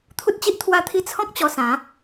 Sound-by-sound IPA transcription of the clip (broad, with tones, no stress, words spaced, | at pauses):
t̪ʰu˦t̚t͡ɕi˦ʔt̪ʰwa˥˧t̪ʰi˦ t͡sʰɔ̃˦k̚ t͡ɕɔ˧sã˨˦